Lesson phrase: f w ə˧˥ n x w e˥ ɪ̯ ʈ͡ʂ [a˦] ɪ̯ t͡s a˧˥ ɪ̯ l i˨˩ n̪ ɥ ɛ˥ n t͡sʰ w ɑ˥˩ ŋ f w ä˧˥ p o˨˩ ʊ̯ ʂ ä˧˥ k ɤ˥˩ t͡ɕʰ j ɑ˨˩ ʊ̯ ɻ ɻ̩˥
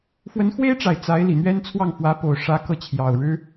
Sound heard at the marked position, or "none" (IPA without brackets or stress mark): a˨˩